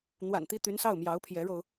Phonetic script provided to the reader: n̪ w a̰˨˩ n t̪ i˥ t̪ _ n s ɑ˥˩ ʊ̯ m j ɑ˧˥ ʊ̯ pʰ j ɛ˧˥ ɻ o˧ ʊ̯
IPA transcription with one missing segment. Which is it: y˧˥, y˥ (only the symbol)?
y˧˥